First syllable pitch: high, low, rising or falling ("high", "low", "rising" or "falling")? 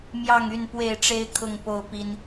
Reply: falling